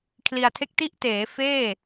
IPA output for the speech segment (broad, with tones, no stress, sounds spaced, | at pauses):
kʰ l i˧ a̯ tʰ e˥˩ k̚ t i˦˥ ʔ t eː˩˦ f eː˥˩